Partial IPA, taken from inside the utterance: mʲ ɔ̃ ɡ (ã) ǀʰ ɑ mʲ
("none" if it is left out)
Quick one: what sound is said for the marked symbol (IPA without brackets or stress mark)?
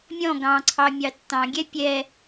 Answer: ɑ̃